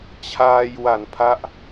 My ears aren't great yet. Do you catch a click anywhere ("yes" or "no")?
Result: no